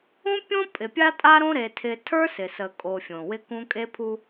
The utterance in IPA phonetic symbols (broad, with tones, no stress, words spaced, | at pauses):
ũ˦pʲõ˦ pʼɪ˨pʲa˦tʼa˦ɾõ˦ ɾe˦tʰɪ˦ tʰə˞˦sɪ˨sə˨kʼo˨ fʲõ˨wɪ˦kũ˦ kʼe˦pʰu˦